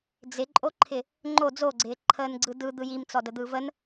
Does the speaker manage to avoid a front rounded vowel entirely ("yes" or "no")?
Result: yes